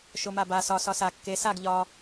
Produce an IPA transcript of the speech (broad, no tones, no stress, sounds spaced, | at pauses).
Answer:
ʃ o m a b a s ɒ s ɒ s a kː e s a ɡ ʎ ɒ